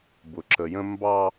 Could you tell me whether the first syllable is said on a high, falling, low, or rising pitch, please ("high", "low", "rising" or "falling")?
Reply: low